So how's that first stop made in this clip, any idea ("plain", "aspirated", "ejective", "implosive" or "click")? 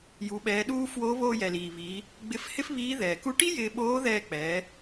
implosive